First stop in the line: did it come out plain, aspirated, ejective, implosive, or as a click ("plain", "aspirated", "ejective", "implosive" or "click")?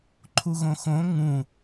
click